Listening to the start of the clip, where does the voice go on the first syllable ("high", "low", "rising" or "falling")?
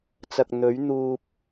low